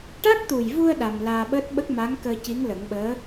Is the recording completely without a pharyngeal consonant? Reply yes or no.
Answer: yes